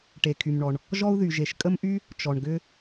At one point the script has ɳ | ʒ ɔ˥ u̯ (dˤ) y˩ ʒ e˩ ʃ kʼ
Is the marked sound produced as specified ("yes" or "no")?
no